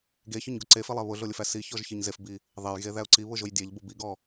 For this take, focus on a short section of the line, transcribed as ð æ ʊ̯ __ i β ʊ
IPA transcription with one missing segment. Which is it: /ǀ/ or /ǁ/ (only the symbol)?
ǀ